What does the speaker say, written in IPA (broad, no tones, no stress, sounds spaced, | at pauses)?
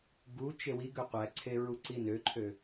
ɡ u t͡ʃ e w i ɡ ø qʷ æ ǀʰ e ɹ u ǀ i n ø ǃʰ ø